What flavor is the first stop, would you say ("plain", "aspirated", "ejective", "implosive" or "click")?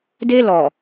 plain